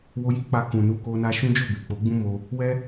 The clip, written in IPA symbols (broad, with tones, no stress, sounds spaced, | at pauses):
w o˧ j i˦ k͡p a˧ k ũ˨ n u˨˦ k o˧ n a˧ ʃ ũ˦ d͡ʒ o˦˨ b e˨ k͡p o˨˦ ɡ͡b ũ˦ m o˧ | w ɛ˦